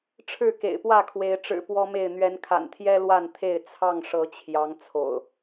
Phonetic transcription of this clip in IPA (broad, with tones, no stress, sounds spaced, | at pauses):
ʈ͡ʂʰ ɻ̩˥˨ k ḛ˨˩ ɪ̯ p w ä˥˨ kʰ w e˨˦ ɪ̯ ʈ͡ʂ ɻ̩˨˩ p w ɔ˦ m e˥˨ ɪ̯ n̪ ɥ ɛ˨˦ n kʰ a̰˨˩ n t̪ʰ j ɛ˦ l w a˥˨ n t̪ʰ e˥˨ ɪ̯ t͡sʰ ɑ˥˨ ŋ ʂ ɤ˨˦ t͡ɕʰ j ɑ˨˦ ŋ t͡sʰ o̰˨˩ ʊ̯